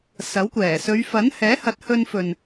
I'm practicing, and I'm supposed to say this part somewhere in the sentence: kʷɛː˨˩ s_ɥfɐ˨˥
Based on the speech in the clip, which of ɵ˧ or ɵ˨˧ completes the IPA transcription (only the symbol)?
ɵ˨˧